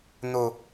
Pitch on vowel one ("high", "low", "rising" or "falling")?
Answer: high